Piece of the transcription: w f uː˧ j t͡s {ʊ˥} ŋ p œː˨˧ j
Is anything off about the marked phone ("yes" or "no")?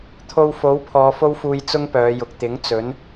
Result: no